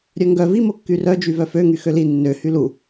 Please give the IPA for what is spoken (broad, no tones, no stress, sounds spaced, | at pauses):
ɾʲ œ ŋ ɡ œ v i m o kː y r œ d͡ʒ y v œ f ø ŋ y x ø l i nː ø h y l u